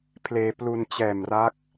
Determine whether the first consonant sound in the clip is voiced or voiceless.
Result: voiceless